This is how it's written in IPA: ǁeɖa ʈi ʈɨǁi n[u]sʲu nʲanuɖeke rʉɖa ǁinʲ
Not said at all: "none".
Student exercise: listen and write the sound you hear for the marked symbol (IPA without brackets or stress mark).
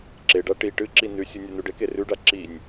ʉ